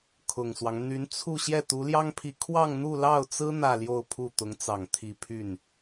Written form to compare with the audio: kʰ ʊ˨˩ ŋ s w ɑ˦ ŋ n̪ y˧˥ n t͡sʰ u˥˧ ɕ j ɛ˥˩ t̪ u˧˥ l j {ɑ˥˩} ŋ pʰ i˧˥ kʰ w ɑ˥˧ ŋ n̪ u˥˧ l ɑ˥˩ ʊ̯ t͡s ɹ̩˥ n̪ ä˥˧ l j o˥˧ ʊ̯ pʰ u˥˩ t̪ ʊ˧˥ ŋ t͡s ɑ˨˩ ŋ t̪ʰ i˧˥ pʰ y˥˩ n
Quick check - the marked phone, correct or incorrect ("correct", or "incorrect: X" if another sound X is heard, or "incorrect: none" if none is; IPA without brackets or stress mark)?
incorrect: ɑ˥